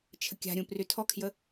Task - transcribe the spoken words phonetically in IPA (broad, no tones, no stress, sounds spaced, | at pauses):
t͡ʃʰ ə kʲ a̤ ɾʲ ũ p r y tʰ ɔ kʰ j ə